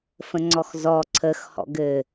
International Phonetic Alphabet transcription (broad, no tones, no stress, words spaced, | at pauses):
fə̃ŋ͡ǀɔxzɔ ǀʰəx hɔ̰ɡɘ